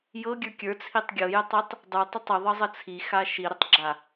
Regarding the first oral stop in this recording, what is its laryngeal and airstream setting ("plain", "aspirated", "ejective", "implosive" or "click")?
plain